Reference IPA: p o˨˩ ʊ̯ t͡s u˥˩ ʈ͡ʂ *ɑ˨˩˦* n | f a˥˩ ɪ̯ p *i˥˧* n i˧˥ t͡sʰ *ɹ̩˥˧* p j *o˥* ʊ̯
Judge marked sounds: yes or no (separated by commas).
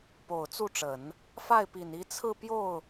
no, no, yes, no